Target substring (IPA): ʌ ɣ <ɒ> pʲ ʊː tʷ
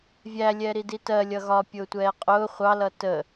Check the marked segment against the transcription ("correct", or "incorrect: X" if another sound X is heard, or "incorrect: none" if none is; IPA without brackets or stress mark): correct